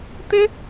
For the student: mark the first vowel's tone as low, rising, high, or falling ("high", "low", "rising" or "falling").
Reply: high